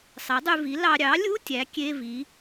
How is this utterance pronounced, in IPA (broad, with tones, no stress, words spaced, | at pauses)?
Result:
sˤe˩˥dˤy˧vi˩˥ lɑ˧ ɾʲɑ˩˥lʲu˧˥˧ tʲæ˩˥kʲe˧˥˧vi˩˥